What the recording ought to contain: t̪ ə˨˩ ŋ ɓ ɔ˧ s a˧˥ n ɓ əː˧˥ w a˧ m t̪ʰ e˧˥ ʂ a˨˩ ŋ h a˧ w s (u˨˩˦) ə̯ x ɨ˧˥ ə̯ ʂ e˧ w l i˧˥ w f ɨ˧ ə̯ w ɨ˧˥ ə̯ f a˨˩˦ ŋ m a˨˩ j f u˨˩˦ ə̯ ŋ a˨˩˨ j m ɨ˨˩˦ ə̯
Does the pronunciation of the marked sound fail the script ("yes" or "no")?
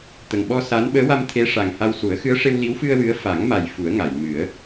no